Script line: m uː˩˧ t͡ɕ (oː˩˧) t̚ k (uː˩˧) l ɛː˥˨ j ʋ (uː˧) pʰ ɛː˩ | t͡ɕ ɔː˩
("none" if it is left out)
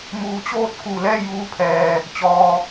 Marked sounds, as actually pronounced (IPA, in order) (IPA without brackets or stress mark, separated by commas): oː˧, uː˧˩, uː˧